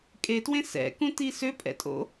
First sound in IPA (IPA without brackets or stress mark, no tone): kʼ